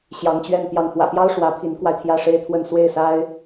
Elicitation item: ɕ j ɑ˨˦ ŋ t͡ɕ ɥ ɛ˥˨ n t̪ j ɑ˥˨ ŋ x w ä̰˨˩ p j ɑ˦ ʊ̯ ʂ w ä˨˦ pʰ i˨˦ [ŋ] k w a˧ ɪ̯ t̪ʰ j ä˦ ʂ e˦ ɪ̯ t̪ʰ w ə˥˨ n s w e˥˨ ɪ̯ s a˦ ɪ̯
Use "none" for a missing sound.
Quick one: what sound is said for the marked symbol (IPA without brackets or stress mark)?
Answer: n